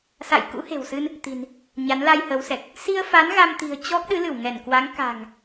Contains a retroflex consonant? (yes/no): no